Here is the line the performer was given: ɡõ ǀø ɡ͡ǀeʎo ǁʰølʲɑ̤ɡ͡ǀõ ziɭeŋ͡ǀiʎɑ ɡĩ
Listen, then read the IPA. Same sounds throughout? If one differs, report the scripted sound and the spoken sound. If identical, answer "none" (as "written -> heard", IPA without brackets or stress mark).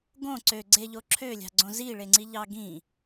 none